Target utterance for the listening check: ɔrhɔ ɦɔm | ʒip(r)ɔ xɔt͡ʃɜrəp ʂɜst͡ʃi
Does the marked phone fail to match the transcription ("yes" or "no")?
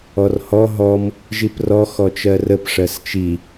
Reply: no